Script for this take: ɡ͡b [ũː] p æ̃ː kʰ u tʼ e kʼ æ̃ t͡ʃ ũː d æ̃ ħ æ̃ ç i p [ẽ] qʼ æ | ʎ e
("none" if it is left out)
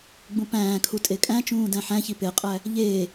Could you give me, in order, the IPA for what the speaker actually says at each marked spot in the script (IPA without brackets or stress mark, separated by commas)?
ũ, e